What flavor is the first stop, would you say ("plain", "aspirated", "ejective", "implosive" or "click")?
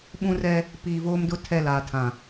implosive